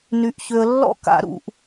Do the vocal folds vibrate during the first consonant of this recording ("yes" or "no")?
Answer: yes